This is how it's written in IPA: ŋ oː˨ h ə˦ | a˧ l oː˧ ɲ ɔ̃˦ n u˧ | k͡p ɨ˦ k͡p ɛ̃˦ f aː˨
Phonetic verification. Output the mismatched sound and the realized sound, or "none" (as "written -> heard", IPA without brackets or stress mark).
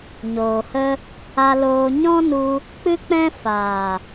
ŋ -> ɲ